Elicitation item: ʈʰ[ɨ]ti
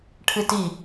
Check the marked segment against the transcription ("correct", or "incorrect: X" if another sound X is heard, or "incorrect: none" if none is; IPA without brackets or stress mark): correct